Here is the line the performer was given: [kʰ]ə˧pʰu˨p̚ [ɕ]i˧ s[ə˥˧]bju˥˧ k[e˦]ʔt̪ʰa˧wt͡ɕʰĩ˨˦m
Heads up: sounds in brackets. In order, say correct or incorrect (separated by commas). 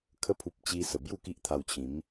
correct, incorrect, incorrect, incorrect